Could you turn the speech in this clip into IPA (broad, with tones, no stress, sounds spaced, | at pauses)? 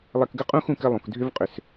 lˠ ɛ˦ k ɡ ə˥ qʼ ũ˥ x ũ˦ k ɘ˦ lˠ ũ˨ k dʱ ʏ˦ v qʼ ʏ˨ s